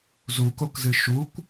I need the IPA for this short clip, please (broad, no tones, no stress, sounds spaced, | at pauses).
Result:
z u k o k z ɨ ʃ u kʷ